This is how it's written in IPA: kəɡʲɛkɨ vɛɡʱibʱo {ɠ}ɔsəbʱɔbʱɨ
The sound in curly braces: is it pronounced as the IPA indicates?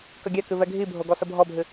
no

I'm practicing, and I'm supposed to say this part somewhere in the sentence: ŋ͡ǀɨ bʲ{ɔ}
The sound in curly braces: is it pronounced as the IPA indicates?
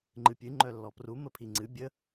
no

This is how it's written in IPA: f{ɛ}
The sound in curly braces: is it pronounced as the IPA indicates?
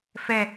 yes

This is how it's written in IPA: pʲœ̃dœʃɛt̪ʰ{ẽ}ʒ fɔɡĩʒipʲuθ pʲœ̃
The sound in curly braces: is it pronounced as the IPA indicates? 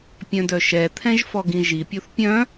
no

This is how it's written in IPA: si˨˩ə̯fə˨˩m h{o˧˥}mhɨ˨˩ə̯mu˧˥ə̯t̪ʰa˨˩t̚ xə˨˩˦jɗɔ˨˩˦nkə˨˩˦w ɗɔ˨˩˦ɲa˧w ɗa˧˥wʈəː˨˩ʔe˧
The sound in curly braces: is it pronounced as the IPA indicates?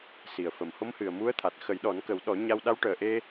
yes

